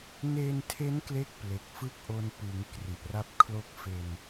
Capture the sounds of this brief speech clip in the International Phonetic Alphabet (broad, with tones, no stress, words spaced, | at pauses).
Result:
ne˧ntʰe˦˥n kle˥˩k̚ple˨˩k̚ fɯ˥˩k̚ʔo˧npɯ˩˦ŋ kri˨˩ʔra˦˥p̚kʰlo˦˥k̚ fe˧n